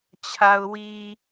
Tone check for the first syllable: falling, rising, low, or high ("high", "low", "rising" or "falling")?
low